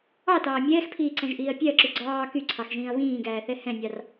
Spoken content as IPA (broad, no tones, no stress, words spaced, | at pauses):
ɑtɑː mʲɛːxpʰiːǀɛ̃ʒʔiːɐ̯ pʲɛɐ̯ǁy ɡ͡ǀɑː kyǀʰɑxʒĩːɐ̯ βĩːɡæːθɛ hɛ̃nʲɑr